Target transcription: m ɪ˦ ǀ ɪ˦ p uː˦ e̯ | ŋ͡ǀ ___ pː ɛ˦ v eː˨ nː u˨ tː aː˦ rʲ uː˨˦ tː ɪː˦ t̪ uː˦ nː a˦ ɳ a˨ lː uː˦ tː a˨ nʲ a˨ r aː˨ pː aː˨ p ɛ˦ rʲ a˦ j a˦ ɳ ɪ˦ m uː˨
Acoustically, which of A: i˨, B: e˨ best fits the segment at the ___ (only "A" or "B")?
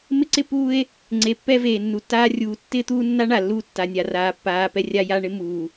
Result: B